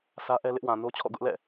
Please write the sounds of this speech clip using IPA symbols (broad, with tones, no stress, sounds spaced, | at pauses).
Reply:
s ä˦ ʔ ɛ˦ l ɪ˦ ʔ w ã˨ n o˦ t͡ɕʰ ɔ̰˦˨ ɡ ʊ˦ ʔ l ɛ̰˦˨